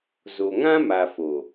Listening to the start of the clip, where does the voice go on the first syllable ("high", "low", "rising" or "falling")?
low